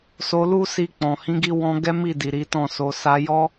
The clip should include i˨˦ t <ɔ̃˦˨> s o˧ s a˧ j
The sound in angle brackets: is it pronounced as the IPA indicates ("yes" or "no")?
yes